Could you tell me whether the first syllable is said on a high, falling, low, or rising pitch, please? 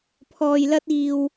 low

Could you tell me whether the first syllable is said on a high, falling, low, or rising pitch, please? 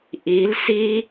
rising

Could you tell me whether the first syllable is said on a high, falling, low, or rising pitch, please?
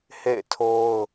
falling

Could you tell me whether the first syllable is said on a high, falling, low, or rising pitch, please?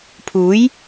rising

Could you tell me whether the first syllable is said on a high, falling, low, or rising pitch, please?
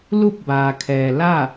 falling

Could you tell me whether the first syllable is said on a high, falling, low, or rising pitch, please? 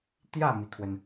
falling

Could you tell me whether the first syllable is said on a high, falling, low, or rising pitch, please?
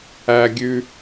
low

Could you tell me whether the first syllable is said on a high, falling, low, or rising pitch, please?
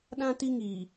high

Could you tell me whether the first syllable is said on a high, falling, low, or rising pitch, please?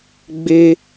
high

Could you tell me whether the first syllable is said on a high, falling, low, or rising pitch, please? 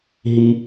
high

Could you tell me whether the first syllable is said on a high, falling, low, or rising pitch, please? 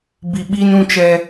low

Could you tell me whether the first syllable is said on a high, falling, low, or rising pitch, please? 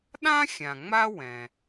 high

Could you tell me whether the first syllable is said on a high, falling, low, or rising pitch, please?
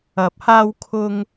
rising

